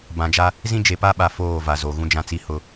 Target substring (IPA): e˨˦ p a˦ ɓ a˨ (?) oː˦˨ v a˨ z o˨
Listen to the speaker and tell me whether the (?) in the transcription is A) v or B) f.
B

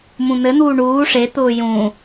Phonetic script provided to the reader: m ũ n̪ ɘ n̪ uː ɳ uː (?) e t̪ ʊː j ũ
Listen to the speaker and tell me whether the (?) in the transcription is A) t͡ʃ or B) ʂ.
B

